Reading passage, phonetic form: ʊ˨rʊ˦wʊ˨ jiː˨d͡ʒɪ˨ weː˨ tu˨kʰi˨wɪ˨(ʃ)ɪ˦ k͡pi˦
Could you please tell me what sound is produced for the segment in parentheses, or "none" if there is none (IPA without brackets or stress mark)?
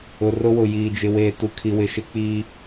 ʃ